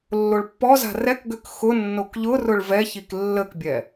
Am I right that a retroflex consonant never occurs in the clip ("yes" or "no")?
no